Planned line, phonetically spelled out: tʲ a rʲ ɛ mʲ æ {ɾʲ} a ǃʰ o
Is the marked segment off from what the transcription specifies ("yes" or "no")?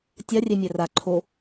yes